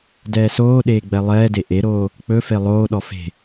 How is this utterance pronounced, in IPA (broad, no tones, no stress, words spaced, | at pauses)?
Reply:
dɛːsoːɗeː ɡ͡bɛlˠɛːde ʔeɾoː | k͡pɵ felˠoːɗɔ fe̤